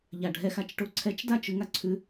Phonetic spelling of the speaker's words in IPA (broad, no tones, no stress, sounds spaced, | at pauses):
ʎ a ɖʱ ɛ x a t͡ʃ ʈ o ǀʰ ɛ t͡ʃ d a t͡ʃ ʉ ŋ a ǀʰ ʉ